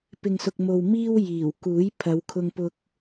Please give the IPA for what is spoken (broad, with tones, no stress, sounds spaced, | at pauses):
p ɪ˨ ŋ s ʊ˨ k̚ m o˨ w m iː˥ w j iː˨˩ w k uː˨˥ j pʰ ɐ˨˧ w kʰ ʊ˧ ŋ p ʊ˧ k̚